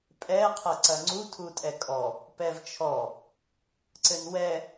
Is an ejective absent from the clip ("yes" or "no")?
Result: no